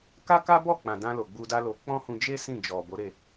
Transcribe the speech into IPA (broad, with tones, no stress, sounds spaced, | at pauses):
k a˦ k a˦ b ɔ˦˨ k͡p ã˨ d ã˧ l o˨ ɡ͡b u˧ d a˦ l o˧ k͡p ɔ̃˦ h ũ˧ d͡ʒ e˦ s ĩ˦˨ d͡ʒ ɔ˨ b o˨˦ ɾ e˦˨